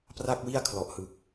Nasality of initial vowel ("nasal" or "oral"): oral